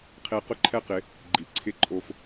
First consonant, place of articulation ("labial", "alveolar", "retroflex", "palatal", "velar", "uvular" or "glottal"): uvular